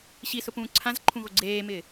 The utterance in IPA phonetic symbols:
ɕisʊpũː ǀʰãzǃʰũɣo ɡ͡ǀeːmɪː

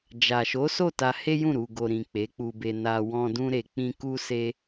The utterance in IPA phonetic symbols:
d͡ʒa˨ʃo˨˦ so˦˨ta˧he˦jũ˦˨ ɾu˨ɡo˨ ɾĩ˨ k͡pe˨˦k͡pu˧be˧ na˧ wɔ̃˧ dũ˧ɾe˨k͡pĩ˧ ku˦se˦

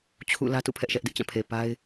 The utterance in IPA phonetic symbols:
t͡ɕʰṵ˦˨ lä˦tṵ˦˨ pʰɛ˦ʔʃɛ˦ʔdɪ˦ʔ t͡ɕã˦˨pʰe˨pa˦ɪ̯

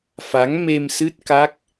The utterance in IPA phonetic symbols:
fa˨˦ŋme˧msɨ˦˥t̚ka˦˥k̚

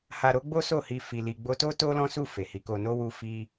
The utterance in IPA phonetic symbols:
ha˧ ɾo˦ ɡ͡bo˦so˦˨hi˧ fi˧li˧ ɡ͡bo˧to˦ to˦lɔ̃˦su˦˨ fe˨hi˨˦ko˧ no˦wu˦fi˦

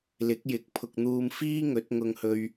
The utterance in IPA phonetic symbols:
lɪ˨˥k̚jɪ˨˥k̚ pʰʊ˨k̚n̪uː˧mfiː˥ ŋɵ˨˥t̚ŋʊ˧ŋhɵ˧ɥ

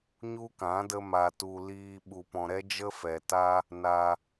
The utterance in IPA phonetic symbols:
ɲu˦kã˨˦ də˦ma˧ tu˧ liː˧ ɓu˧pɔ̃˧ ɾɛ˦d͡ʒə˦fɛ˨ta˦ | na˧

